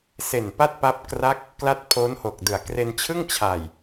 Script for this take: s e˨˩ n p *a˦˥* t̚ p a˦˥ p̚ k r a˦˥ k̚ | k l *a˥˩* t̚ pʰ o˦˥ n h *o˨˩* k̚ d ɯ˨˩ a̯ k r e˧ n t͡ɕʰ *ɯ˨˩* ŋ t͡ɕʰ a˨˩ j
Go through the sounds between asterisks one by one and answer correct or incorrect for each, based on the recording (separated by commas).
incorrect, correct, correct, incorrect